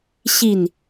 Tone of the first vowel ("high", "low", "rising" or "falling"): falling